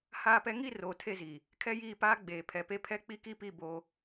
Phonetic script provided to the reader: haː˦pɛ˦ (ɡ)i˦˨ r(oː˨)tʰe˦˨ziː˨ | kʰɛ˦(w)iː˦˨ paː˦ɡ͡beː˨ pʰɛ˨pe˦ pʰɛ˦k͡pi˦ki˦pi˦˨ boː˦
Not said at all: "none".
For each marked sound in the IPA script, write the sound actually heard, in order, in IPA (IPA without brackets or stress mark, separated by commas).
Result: ŋ, oː˨, j